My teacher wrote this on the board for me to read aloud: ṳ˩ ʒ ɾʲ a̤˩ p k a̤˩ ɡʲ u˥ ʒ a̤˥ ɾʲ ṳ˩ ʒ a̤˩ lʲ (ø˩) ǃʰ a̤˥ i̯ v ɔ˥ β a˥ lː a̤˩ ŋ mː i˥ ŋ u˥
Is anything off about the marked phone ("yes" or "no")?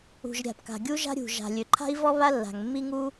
no